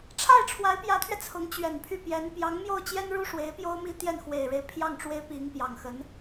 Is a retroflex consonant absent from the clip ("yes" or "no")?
no